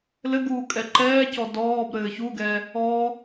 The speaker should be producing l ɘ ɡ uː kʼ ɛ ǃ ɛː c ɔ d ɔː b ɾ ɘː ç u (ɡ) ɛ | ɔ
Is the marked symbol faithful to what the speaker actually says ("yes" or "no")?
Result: yes